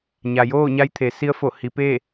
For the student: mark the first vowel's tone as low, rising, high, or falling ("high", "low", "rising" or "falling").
low